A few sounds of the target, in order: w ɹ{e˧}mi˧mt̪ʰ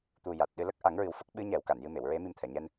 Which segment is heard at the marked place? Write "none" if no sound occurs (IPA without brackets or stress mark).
e˧˥